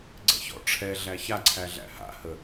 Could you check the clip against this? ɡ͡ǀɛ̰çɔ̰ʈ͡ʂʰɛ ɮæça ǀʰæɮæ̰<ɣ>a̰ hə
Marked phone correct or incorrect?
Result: incorrect: h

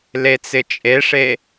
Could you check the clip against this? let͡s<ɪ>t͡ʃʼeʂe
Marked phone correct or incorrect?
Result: correct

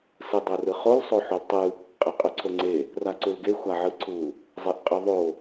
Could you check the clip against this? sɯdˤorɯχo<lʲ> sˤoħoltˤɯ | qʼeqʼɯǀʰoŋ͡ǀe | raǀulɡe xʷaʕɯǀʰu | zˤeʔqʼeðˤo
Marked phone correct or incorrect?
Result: incorrect: l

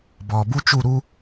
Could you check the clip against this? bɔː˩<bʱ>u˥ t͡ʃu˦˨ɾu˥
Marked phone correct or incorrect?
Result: incorrect: b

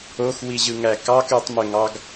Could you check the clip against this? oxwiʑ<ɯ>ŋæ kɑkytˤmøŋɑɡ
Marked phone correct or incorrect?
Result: correct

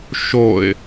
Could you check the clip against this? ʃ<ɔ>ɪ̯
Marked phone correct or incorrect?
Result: incorrect: o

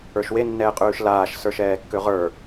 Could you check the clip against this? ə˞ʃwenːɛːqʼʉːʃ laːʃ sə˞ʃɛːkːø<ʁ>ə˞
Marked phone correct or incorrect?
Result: correct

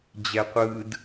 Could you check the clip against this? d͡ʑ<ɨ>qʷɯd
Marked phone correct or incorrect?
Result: incorrect: ɛ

